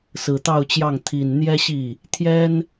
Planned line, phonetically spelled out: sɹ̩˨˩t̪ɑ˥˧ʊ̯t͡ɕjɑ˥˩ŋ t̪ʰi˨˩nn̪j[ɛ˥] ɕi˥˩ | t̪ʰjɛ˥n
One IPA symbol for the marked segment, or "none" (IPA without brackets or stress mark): ɛ˥